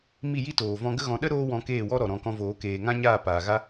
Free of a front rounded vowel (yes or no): yes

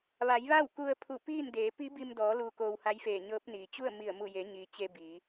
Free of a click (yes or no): yes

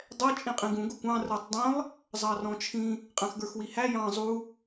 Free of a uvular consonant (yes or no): no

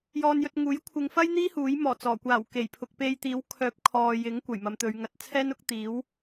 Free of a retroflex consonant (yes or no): yes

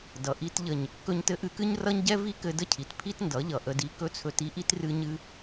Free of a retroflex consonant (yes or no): yes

